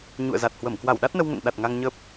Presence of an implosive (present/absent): present